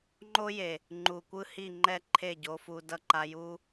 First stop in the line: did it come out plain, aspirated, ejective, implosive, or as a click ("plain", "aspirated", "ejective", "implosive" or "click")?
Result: click